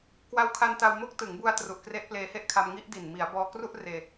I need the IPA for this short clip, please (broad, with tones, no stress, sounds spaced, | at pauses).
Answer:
k w a˧ w kʰ a˧ n t a˧ w m o˦˥ k̚ t ɯ˩˦ ŋ b u˧ a̯ t r u˨˩ ʔ k r e˦˥ ʔ p l eː˧ h e˥˩ ʔ kʰ a˧ m ŋ i˦˥ ʔ d i˨˩ n m i˩˦ a̯ b ɔː˧ k r u˥˩ ʔ r eː˧